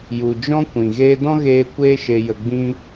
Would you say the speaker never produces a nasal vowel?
no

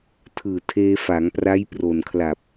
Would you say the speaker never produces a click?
yes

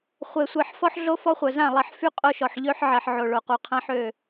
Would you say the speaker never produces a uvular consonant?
no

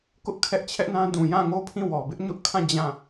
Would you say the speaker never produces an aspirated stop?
no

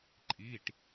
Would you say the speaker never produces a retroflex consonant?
no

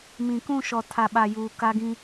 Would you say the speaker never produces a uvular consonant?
yes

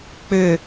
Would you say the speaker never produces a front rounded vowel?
no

